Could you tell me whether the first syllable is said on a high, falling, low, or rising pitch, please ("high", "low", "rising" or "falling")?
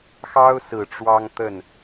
high